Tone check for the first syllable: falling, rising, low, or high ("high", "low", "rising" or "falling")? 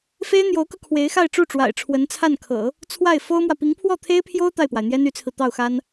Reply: high